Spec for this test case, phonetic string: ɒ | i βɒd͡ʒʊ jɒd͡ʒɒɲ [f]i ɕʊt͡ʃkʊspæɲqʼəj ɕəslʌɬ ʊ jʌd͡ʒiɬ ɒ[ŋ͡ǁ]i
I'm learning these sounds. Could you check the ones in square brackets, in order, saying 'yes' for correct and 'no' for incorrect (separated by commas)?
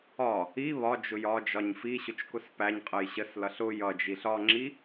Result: yes, yes